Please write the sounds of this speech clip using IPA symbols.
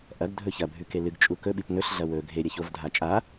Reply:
ʔ ɐ ɡ dʱ ɵ ç ɐ bʱ ʉ k e l ɨ ɡ t͡ʃʼ u k ɵ ɓ i p n ɵ ɬ ɮ ɐ w ɵ ɡʱ e ɾʲ ɐ ç o v dʱ a t͡ʃʼ a

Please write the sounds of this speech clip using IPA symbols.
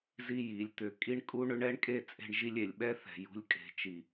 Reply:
z i˦ j i˨˦ lʲ t̪ ʏ˧ kʼ i˦ ɳ kʼ u˦ ɳ ʏ˦ ɳ ɛ˦ ɳ kʼ e˦˨ t͡sʼ e̤˧ ɳ ʒ i˧ lʲ e˨ lʲ ɓ ɛ˦ θ ɛ̤˨ j ṳ˨ lʲ kʼ e̤˨ t͡ʃ i˨

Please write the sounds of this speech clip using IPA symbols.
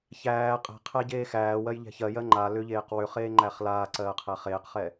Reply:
ç æː qʼ æ̤ qʰ æ ɟ eː x æː w ɜ j ʎ ɛ̤ ç ɜ j ɜ ŋ͡ǃ a l ʏ ʎ eː q w ʏ χ eː ŋ͡ǃ æ χ l aː ǀ ɜː qʰ æ χ eː q χ ɛ

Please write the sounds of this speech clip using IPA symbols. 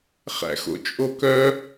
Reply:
χ æ̰ x o̰ t͡ʃʼ o k œ

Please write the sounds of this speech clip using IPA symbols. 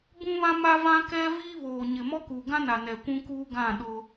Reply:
b ũ˦ β ã˦ m a˦ v ã˦ k ɛ˦ v iː˦ β oː˨ ɲ ɪ˨ m ɔ˦ k uː˨ ɡ ã˦ n a˨ n ɛ˨ kʷ ũ˦ k uː˦ ɡ ã˦˨ ɗ ʊ˦

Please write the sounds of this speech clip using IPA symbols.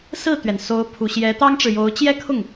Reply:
s ɹ̩˥˩ t̪ ɥ ɛ˩ n s o˧˥ ʊ̯ pʰ u˨˩ ɕ j ɛ˧˥ t̪ ɑ˥ ŋ ʈ͡ʂ ɻ̩˨ j o˧˥ ʊ̯ t͡ɕ j ɛ˥ kʰ ʊ˥˩ ŋ

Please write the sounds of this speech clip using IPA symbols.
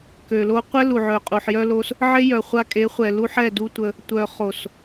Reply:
k ø˨ l o˧ qʷ ɛ˦ l u˨ ʕ œ˨ qʼ u˨ ħ j œ˧ l o˧ s | ʕ e˦ j œ˨ χʷ a˧ kʼ e˨˦ χʷ ɛ˨ l u˧ ħ ɛ˦˨ d u˦ tʷ ə˧ | tʷ œ˨ χ o˨ s

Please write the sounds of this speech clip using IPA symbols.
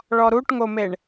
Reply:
ɭ ɔ ɾ u ʈ ŋ o m e ɳ

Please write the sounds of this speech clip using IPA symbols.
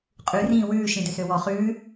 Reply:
qʼ ʉ r ĩː w ʉː ʃ ĩ d ø s ø w ɔ χ ʉː

